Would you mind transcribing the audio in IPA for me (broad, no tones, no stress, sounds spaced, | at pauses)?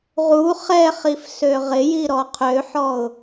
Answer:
ʁ u χ ɛ χ i f s ø ʁ ɪ j i ɾ ɔ qʰ ø ħ ɔ ʊ̯